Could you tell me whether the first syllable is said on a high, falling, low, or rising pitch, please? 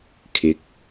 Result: rising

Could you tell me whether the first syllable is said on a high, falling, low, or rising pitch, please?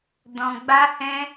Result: low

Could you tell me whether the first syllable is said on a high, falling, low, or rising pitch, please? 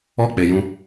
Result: falling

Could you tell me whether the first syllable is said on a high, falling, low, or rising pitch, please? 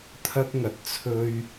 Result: high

